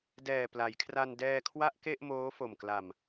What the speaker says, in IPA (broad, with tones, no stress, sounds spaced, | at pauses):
d ɛː˨˩ p l a˩˦ j kʰ r a˧ n d ɛː˧ kʰ w a˥˩ ʔ k e˥˩ ʔ m oː˦˥ f o˨˩ m k l a˨˩ m